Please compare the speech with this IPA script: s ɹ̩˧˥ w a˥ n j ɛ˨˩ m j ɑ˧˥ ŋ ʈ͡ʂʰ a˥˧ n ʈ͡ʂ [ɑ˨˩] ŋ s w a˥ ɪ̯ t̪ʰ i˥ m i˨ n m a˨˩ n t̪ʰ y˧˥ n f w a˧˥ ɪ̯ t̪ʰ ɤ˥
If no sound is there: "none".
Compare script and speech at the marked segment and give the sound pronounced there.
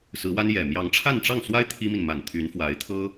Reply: ɑ˥˩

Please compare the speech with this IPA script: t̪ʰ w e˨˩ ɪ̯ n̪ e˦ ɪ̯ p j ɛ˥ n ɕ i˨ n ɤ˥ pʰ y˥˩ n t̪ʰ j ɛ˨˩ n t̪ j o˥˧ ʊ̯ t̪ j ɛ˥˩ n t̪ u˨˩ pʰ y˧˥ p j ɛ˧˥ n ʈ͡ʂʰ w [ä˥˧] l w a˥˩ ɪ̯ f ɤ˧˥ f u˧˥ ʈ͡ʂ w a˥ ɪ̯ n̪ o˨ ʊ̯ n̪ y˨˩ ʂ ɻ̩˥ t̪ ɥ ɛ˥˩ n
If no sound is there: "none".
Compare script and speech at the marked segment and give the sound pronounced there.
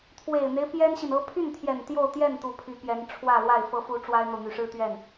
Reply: ä˥˧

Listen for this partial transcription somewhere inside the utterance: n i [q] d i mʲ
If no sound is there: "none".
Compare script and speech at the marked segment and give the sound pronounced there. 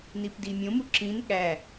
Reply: p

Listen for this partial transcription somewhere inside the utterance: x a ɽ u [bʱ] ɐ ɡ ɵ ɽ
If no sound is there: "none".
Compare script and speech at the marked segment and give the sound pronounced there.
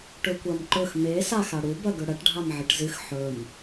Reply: b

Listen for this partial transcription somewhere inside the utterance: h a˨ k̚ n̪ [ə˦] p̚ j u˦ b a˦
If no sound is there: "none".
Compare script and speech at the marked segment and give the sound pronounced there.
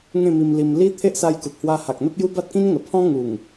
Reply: ə˦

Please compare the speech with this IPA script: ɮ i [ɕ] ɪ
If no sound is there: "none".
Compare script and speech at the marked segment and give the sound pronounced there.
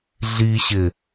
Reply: ɕ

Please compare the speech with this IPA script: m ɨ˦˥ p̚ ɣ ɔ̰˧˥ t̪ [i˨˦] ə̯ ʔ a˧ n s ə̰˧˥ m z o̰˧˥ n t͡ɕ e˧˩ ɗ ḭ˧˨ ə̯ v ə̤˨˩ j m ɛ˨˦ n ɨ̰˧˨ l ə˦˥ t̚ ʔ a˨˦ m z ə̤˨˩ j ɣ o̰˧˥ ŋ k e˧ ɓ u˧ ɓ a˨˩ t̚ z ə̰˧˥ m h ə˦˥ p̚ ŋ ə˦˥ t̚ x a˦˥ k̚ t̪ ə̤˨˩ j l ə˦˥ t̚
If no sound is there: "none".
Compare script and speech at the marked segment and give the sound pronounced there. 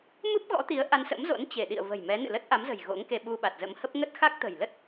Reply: i˨˦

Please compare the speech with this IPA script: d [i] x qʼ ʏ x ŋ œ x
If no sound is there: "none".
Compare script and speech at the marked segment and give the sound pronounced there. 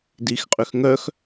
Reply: i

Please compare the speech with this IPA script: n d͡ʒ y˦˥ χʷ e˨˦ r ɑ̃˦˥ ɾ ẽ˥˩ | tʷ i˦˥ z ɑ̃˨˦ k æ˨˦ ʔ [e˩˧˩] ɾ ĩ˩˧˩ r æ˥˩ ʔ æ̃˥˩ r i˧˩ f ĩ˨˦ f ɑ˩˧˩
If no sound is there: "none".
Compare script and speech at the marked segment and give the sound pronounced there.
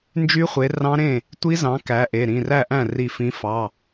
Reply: e˩˧˩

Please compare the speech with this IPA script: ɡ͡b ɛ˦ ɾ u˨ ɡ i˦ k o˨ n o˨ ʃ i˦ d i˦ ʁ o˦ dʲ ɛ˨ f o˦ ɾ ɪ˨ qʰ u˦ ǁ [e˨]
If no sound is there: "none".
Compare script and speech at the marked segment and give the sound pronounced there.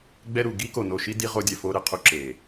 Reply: e˨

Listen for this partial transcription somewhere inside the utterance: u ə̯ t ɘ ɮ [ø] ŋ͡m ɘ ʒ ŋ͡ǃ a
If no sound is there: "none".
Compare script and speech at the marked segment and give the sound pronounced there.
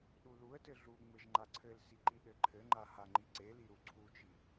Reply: u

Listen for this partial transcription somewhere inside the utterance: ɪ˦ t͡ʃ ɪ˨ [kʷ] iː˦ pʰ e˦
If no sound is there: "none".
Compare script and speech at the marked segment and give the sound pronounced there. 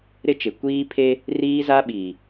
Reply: kʷ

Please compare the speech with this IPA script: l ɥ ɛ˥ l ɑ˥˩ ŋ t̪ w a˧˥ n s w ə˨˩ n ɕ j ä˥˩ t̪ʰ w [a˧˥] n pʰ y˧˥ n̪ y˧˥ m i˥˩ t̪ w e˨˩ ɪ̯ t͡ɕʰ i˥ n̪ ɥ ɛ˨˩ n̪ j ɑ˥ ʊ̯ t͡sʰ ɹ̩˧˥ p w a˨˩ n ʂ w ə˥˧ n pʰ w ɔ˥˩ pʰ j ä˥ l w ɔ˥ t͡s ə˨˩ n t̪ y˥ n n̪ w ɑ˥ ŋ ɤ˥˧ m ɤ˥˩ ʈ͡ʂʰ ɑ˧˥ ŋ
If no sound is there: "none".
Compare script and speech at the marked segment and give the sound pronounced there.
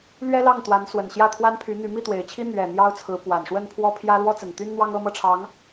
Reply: a˥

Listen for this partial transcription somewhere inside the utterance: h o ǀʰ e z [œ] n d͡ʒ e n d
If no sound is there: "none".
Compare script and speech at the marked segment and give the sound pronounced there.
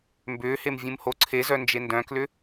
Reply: œ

